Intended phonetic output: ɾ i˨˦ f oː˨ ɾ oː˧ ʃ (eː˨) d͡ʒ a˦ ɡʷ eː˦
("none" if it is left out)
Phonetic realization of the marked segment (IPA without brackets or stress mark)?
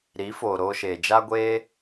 eː˨